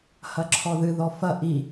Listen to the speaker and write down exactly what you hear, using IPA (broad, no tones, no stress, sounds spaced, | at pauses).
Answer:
h ɐ ǁʰ ɔ ð ɨ ð ɔ f ɐ ʔ i